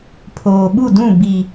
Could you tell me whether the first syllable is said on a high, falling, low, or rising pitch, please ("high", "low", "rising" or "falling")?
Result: low